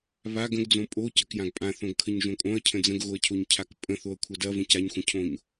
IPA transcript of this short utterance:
β a ɡ ə̃ ɡ d͡z õ pʼ o c ɐ k j ã ɡ pʼ ã θ õ ɡ kʰ ə ɲ ʒ õ kʼ õ ɐ̯ cʰ ə̃ d͡z ə̃ ɡ ɣ o ɐ̯ cʰ o ɲ cʰ a k pʼ ə̃ θ o ɐ̯ kʷʰ ɐ d ɐ v ə̃ c a ɲ xʷ ə̃ cʰ õ ɲ

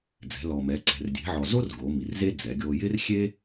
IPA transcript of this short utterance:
d͡z ɛ̤˩˧ l ɔ˩ m ɛ˩˧ ǀ ɛ̤˩ r dʲ e̤˩˧ ʕ ɔ˩ z o˥ r ɡ o˩˧ m i˩ r z e˥ d͡z ɛ˩˧ ɡʲ o˧ j ɪ˥ r xʲ e˥

